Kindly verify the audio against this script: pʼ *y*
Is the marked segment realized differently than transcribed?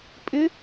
yes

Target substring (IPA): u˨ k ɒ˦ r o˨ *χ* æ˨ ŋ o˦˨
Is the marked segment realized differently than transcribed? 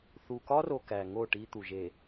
yes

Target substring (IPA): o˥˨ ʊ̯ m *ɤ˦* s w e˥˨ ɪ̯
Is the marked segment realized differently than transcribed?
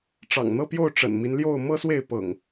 no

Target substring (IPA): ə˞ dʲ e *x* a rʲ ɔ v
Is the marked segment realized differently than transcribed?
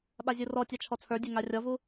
yes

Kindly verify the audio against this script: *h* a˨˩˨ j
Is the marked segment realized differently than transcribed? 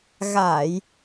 yes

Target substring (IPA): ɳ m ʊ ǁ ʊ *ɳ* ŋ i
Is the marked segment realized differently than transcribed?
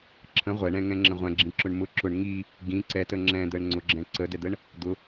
no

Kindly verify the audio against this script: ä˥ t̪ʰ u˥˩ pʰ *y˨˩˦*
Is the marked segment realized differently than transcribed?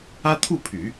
no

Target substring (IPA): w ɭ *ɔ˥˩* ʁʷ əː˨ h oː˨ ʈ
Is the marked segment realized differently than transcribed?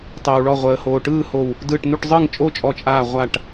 no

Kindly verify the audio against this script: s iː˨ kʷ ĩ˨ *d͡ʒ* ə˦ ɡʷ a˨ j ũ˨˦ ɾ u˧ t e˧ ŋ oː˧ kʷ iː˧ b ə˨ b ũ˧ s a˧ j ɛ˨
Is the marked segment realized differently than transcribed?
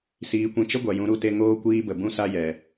yes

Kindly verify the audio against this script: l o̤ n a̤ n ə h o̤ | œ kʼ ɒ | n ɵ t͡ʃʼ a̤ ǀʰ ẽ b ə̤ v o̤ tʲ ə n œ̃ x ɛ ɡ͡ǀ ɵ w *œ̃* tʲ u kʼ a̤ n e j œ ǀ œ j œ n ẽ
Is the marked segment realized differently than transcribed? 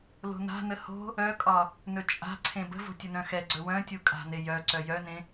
no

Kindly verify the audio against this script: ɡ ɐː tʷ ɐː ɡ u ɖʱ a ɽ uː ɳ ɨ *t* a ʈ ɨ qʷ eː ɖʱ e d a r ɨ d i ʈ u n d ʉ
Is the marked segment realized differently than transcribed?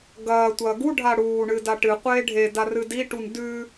yes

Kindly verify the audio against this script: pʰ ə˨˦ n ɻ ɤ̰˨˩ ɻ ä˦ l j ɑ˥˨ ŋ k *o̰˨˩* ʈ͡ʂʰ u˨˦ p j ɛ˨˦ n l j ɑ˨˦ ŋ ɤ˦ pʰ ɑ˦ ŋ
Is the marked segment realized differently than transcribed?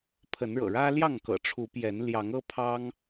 yes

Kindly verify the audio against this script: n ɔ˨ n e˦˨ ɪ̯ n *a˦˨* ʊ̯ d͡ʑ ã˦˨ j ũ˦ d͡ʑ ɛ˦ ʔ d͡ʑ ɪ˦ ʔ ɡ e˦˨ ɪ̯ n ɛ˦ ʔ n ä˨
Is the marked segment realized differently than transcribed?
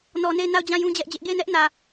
no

